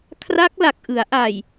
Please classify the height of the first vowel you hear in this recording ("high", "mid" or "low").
low